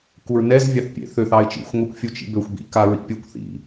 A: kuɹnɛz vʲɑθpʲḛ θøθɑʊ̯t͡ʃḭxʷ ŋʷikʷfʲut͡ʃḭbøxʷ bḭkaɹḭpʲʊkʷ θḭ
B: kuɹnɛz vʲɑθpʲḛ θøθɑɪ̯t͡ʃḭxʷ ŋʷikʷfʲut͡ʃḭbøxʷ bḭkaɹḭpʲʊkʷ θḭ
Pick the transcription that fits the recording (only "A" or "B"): B